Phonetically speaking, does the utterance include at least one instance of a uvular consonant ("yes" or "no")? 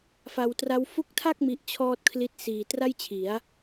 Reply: no